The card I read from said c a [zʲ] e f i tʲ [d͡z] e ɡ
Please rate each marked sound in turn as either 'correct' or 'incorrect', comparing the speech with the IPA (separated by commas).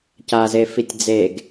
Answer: incorrect, correct